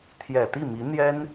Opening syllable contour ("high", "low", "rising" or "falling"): low